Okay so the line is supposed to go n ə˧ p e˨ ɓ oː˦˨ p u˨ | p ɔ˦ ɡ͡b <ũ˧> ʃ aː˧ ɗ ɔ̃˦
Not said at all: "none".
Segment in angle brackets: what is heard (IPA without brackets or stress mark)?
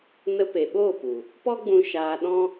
ũ˧